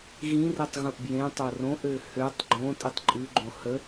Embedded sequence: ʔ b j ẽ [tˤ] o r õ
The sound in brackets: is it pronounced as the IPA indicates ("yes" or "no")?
yes